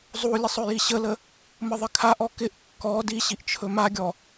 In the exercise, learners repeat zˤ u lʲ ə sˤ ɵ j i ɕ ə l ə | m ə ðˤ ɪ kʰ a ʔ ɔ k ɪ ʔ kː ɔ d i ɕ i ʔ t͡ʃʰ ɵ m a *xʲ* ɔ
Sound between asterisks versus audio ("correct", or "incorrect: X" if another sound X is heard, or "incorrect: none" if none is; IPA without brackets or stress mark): incorrect: ɡʲ